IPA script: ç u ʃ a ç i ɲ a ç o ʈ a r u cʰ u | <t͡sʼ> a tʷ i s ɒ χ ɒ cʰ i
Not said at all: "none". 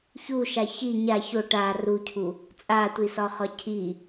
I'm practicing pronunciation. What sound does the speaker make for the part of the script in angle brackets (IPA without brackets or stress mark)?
t͡sʼ